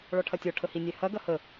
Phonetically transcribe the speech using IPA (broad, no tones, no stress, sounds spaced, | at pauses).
ɭ ɔ ʈʰ ɐ tʲ ɔ ʈʰ ə h i nʲ ɛ h ɐ ɡ ɐ h ə